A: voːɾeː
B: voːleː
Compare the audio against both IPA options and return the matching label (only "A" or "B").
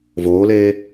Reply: B